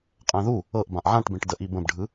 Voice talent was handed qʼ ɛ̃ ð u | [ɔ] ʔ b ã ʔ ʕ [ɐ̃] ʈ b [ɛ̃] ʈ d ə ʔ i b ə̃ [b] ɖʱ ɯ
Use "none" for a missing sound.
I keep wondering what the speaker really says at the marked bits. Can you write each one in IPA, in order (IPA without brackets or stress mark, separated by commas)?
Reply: ɤ, ã, ẽ, b